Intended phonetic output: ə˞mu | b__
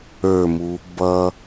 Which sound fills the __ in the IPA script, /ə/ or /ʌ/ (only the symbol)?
ʌ